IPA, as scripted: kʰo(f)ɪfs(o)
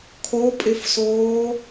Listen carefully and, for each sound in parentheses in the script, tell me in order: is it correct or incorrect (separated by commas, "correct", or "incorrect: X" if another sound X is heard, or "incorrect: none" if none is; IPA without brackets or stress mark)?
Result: incorrect: pʼ, incorrect: oː